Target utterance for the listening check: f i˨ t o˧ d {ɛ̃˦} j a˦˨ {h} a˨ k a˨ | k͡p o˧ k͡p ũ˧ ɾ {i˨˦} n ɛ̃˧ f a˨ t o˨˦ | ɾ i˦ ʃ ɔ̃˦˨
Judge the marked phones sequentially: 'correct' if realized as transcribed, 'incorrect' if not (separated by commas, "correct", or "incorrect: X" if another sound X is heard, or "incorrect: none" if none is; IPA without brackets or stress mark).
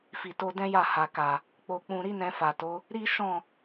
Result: correct, correct, incorrect: i˦